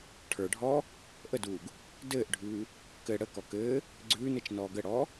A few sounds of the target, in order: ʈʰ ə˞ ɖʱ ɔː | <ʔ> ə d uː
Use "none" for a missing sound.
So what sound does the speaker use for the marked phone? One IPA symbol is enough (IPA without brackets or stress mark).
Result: ʔ